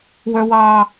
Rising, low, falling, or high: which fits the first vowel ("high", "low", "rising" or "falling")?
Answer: high